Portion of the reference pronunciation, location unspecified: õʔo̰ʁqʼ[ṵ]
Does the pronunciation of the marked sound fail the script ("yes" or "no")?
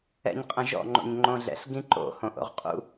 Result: no